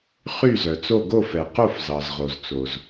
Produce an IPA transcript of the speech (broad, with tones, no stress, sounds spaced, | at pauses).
χ y˥˩ z œ˩ t͡s o˥˩ ɡ o˥˩ f ɛ˩ q o˥˩ f z ɑ˩ z ʁ o˩ z t͡s o˩ z